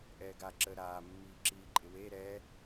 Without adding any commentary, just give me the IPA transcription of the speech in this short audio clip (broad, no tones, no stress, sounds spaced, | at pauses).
ʔ ɛː ɡ a ǁ əː ɾ aː mː iː ǁ iː ǃʼ ɪ w e ɾ ɛ